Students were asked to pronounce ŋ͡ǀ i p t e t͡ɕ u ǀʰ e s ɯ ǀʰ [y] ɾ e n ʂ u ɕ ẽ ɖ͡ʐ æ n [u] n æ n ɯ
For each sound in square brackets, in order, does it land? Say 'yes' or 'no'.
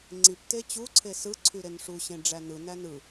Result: yes, no

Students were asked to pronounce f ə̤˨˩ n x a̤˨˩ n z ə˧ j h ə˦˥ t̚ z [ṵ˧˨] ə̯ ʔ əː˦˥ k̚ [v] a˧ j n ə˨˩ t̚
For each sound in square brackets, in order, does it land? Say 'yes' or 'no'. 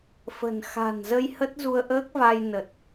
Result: no, yes

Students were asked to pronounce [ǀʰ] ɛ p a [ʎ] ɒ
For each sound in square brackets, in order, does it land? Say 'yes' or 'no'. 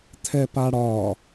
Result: no, no

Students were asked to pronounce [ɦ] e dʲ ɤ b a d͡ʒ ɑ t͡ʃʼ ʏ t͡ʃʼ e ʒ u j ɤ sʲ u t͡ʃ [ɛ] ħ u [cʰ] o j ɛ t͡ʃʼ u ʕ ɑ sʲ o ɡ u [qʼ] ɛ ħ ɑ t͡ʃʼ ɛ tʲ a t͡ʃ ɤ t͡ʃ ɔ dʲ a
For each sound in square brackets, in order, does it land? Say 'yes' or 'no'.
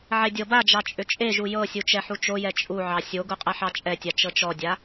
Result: no, yes, no, yes

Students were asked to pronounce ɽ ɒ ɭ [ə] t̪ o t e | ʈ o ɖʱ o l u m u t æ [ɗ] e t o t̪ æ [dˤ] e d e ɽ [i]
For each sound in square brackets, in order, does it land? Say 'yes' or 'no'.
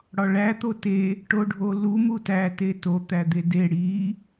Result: no, no, no, yes

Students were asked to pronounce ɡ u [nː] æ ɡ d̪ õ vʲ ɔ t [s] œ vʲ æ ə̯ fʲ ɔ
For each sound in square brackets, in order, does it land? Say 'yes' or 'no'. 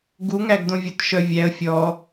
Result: no, no

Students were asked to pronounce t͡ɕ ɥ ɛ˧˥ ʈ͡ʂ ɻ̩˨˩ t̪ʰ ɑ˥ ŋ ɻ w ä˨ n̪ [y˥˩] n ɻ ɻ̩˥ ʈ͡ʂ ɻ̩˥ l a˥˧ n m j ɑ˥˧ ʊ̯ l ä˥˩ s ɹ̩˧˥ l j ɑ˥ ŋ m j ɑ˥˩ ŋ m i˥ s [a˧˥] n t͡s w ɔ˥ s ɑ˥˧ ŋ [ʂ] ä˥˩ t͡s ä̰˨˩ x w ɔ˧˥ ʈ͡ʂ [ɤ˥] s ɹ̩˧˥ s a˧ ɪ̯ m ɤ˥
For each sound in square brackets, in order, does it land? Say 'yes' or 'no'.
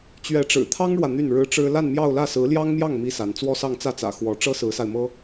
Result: yes, yes, no, yes

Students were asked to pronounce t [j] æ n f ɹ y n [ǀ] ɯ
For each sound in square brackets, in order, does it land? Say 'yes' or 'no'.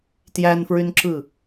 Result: yes, no

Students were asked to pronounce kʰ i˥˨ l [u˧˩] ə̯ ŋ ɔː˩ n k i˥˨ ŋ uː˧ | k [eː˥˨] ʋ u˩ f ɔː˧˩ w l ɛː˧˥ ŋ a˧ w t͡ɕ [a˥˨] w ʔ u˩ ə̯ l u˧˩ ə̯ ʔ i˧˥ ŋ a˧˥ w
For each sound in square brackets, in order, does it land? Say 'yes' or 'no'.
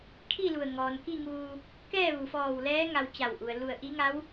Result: yes, no, no

